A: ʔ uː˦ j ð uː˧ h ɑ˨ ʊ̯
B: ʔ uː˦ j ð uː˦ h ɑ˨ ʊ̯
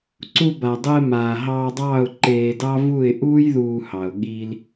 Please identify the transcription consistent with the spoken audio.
A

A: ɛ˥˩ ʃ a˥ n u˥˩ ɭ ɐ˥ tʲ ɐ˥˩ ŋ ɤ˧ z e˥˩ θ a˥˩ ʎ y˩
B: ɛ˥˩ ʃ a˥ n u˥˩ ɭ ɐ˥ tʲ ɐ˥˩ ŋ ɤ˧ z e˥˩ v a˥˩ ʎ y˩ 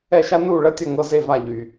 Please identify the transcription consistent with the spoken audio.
B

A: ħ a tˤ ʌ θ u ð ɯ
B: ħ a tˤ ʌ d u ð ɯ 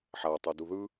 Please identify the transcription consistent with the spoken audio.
B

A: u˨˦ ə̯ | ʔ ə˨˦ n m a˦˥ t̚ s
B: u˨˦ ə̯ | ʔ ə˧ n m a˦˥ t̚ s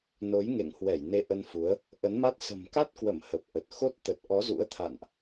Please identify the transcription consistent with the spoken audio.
A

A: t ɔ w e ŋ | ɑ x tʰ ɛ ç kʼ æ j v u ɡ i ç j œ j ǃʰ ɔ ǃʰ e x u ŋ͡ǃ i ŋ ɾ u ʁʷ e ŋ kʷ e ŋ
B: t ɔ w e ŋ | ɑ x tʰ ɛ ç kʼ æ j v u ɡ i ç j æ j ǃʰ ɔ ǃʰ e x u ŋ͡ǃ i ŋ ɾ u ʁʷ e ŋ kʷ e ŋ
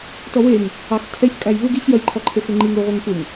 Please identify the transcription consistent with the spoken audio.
A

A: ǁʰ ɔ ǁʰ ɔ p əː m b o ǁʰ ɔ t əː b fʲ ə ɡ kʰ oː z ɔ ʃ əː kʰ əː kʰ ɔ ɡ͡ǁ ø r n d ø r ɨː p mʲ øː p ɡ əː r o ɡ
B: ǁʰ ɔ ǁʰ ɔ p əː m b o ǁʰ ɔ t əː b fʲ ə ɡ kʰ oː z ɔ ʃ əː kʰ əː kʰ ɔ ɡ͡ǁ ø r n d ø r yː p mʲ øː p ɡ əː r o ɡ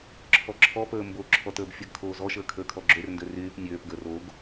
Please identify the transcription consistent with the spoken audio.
B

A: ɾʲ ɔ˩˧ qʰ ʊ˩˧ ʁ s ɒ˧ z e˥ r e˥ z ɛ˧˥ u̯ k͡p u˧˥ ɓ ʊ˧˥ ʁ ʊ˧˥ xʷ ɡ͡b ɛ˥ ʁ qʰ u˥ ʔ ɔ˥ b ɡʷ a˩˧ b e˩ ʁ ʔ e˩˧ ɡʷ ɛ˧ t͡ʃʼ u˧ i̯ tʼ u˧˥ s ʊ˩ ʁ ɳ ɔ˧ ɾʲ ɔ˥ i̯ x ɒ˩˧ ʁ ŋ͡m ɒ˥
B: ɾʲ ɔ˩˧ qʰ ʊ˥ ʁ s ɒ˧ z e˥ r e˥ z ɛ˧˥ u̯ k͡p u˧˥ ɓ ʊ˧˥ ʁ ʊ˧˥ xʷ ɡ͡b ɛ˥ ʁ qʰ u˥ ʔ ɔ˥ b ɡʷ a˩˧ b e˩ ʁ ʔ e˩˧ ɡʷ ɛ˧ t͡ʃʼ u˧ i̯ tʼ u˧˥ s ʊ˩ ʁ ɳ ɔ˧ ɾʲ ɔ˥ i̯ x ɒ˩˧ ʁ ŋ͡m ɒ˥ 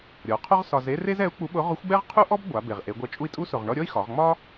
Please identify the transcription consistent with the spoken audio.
B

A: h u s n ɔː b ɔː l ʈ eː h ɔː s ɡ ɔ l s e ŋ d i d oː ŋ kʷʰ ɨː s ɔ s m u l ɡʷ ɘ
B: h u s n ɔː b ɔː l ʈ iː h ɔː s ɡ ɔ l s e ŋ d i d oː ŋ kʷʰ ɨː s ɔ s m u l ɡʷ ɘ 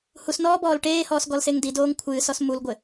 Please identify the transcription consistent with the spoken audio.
A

